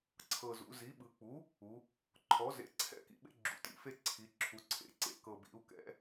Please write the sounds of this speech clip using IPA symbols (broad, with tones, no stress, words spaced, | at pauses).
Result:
ǀʰɤ˨˩zṵ˩˧zi˩˥ ɓɯ˩˧k͡pu˩˥ | u˩˧ | ǃʰɔ˩˥zḛ˩˥ǀʰɛ̰˥˩kḭ˩˧ ɓḛ˦ɡ͡ǁṵ˩˧tḭ˨˩fe˥˩ ǀʰi˩˧ǁʰu˩˧ǀʰḛ˨˩ ǀḛ˥˩kɤ˨˩ bḭ˩˧u̯kɛ̰˩˧